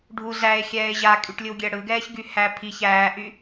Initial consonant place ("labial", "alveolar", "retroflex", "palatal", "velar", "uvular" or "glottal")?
retroflex